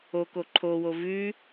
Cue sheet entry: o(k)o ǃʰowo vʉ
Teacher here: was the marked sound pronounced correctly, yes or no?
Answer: yes